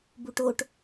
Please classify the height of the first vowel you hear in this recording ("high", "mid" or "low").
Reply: high